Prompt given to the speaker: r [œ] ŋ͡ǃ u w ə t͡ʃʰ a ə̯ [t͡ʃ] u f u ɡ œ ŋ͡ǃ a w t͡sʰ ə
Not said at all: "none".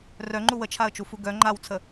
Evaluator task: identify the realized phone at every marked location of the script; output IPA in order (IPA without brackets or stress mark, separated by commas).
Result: œ, t͡ʃ